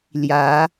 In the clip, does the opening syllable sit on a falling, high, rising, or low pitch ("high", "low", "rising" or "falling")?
rising